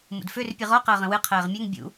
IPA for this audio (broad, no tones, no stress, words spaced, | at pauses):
mṵdfør pʲɨʁɔ qəːʁə̃wɨ qʰɛːʁmʲøŋ bʲṵ